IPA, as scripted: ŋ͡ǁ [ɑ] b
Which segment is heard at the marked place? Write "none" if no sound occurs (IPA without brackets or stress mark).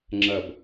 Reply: ɐ